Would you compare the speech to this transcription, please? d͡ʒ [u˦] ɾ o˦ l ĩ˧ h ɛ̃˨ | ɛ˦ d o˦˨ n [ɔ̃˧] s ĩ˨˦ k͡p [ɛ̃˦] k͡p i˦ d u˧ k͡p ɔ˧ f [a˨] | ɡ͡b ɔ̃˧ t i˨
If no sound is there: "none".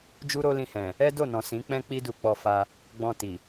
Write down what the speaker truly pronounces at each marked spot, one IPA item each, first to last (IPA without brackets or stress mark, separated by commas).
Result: u˦, ɔ̃˨, ɛ̃˦, a˧